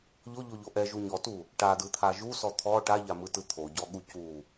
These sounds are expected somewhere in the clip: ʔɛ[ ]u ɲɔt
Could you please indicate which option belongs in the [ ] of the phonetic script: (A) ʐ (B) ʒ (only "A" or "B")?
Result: B